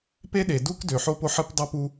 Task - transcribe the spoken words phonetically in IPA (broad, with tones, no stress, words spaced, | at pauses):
pe˥ɗe˩du˥k dø˩ħo˥po˥ ħɨ˥p dˤʉ˥pu˥